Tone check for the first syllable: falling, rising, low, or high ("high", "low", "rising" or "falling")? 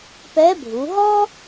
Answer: rising